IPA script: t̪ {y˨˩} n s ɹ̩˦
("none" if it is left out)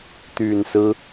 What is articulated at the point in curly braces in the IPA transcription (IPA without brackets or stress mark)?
y˨˩